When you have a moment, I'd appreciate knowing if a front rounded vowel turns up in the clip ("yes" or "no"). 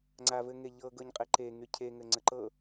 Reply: yes